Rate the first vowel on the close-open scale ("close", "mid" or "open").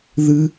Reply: close